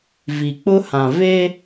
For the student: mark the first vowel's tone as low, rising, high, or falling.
low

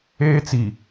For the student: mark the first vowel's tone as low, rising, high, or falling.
high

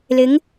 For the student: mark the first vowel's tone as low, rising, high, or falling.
rising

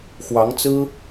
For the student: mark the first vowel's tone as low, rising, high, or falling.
rising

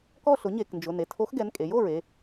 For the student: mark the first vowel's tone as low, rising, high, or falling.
falling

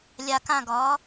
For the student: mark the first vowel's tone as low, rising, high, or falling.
low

